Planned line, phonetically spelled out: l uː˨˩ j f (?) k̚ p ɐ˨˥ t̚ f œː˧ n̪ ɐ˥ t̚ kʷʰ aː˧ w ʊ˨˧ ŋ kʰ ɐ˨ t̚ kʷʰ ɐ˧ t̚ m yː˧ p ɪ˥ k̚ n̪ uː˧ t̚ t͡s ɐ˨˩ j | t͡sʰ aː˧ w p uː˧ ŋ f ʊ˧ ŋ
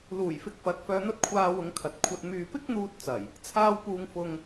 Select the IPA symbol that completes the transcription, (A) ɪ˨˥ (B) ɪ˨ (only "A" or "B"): B